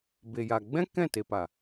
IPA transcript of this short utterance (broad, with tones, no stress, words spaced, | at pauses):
be˨ja˨ ɡ͡bɛ̃˦ kɛ̃˦˨te˨pa˨